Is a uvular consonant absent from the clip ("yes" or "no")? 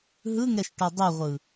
no